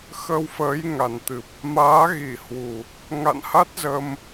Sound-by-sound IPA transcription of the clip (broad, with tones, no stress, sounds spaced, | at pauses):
x ə˧ w f əː˨˦ j ŋ a˨˩ n t̪ ɨ˨˩ p̚ | m aː˨˦ ɣ i˧˩ h w u˨˩ | ŋ a̰˧˨ n h a˦˥ t̚ z ə˧ m